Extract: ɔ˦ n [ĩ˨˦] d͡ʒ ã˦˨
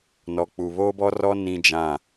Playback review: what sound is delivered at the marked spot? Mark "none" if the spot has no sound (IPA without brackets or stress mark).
ĩ˦